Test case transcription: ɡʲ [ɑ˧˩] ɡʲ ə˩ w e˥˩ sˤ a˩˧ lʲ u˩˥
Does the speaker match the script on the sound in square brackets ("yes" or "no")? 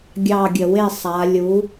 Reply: yes